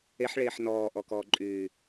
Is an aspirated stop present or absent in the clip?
absent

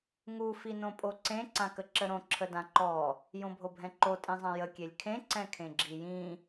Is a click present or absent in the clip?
present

